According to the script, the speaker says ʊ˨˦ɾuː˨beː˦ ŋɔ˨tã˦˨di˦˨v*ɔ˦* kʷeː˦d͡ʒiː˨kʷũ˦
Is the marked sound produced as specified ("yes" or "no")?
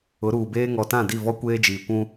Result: yes